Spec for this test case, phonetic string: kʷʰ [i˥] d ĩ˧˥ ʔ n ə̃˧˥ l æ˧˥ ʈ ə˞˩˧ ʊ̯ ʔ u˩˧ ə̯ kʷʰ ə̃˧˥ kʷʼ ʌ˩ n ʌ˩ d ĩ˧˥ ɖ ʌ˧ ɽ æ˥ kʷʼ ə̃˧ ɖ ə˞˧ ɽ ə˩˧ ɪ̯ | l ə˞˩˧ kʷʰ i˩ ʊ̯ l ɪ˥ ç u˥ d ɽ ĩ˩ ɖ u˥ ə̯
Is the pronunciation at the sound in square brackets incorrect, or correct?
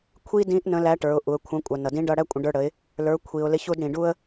correct